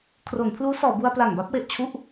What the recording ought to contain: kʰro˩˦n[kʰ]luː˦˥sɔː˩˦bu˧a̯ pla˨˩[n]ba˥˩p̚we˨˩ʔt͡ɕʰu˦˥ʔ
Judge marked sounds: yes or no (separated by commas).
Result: no, no